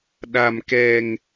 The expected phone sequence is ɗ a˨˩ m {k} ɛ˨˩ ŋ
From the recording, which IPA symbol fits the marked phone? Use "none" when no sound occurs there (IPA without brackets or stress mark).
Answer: k